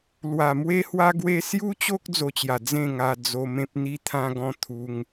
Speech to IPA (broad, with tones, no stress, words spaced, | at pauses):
lwa˨˩mwe˦hwa˦ɡwe˦ sju˦t͡ɕo˦k̚ d͡zo˧t͡ɕja˨˩ d͡zẽ˥˧ŋa˧ d͡zo˧mẽ˦p̚ n̪i˦t̪ʰã˦ɡɔ̃˥˧ t̪ʰu˦ŋ